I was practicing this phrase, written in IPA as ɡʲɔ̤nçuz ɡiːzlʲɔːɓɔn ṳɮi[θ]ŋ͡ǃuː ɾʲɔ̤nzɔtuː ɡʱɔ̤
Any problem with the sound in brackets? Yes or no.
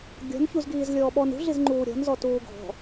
yes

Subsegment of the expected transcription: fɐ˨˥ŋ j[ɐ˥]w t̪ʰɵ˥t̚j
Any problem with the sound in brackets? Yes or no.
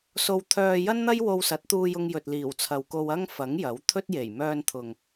yes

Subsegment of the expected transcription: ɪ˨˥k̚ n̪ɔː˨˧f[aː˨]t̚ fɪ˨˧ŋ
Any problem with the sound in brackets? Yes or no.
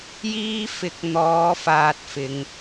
no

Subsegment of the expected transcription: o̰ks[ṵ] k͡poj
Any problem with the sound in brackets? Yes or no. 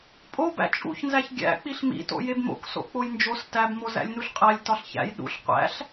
yes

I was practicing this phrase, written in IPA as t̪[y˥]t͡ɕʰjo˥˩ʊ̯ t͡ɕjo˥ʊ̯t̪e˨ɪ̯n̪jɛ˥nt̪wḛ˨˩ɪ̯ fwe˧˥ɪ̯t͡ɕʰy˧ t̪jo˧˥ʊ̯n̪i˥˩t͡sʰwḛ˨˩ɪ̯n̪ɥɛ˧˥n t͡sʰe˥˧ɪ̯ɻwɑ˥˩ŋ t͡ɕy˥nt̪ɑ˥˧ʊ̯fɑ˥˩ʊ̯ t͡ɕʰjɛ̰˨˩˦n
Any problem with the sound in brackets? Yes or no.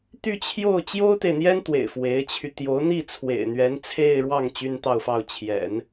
yes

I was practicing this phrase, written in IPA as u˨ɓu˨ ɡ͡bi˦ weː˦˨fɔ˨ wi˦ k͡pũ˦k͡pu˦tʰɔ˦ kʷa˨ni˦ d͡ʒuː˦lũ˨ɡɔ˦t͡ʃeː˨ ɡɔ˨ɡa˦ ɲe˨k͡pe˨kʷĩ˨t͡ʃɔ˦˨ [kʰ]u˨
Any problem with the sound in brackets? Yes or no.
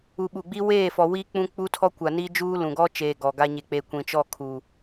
no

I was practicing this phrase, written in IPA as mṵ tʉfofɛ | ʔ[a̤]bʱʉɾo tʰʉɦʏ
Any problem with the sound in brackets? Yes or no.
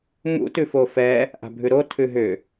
no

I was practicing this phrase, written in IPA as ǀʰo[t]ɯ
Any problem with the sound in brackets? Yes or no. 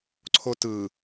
no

